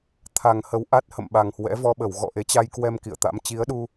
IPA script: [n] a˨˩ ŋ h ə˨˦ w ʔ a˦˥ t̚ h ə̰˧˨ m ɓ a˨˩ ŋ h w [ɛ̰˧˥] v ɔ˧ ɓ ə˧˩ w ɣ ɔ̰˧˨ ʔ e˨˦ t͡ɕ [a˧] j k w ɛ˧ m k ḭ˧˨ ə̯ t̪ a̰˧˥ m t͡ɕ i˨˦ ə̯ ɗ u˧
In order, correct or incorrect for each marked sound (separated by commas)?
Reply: incorrect, correct, correct